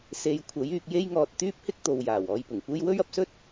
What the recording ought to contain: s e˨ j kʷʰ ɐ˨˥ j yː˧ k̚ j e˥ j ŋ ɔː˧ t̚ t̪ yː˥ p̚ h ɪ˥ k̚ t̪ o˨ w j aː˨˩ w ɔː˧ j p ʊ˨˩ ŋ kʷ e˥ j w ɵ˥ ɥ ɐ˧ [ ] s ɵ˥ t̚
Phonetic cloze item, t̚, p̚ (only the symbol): p̚